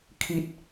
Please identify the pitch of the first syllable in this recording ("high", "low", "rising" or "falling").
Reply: high